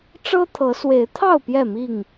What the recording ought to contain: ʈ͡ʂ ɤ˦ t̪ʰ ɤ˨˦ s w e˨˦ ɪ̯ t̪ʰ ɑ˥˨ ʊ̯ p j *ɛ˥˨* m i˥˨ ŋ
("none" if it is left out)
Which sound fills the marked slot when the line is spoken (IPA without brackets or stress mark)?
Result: ɛ˥˨